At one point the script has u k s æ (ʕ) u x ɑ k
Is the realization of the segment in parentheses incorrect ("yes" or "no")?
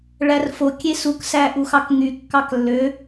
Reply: yes